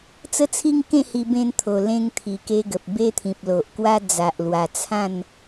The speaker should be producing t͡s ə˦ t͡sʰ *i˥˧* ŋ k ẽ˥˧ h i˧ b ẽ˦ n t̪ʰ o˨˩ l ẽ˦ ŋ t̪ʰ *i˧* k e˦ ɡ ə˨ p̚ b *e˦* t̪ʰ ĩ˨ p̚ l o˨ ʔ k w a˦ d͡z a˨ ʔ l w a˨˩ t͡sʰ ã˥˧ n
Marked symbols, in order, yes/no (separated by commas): no, no, yes